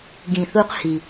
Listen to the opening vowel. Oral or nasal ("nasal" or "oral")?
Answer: nasal